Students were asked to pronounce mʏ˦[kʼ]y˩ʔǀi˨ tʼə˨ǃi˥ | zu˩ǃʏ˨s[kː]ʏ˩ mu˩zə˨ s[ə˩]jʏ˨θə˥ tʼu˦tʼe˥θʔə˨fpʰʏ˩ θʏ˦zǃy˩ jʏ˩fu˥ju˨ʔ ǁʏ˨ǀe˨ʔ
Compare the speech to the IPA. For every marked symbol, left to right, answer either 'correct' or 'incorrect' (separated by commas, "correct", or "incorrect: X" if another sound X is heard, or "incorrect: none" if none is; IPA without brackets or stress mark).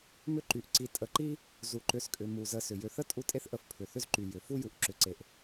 incorrect: ǃ, incorrect: kʼ, incorrect: ʏ˩